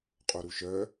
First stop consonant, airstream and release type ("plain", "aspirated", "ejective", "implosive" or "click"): ejective